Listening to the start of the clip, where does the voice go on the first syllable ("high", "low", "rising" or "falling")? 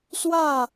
falling